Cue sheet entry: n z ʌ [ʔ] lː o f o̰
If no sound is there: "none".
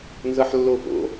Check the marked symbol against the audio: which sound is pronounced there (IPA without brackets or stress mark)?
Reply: ħ